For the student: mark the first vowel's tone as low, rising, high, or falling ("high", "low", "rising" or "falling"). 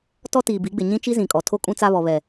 high